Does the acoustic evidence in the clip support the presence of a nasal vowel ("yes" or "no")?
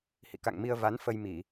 no